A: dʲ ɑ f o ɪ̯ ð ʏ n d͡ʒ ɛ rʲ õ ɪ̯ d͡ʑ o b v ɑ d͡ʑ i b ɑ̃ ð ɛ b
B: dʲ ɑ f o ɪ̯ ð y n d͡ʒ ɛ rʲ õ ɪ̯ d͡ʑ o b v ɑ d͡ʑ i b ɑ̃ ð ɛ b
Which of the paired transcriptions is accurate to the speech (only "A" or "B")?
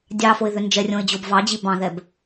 A